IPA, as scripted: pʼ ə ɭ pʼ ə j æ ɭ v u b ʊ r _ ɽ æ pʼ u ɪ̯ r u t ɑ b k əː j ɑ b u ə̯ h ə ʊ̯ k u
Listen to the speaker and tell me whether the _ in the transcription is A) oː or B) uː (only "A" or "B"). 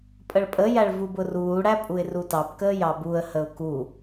B